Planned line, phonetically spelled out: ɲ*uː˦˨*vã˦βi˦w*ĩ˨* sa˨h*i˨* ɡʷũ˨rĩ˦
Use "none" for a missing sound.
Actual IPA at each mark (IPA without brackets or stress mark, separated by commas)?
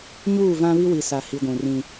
uː˦˨, i˨, i˨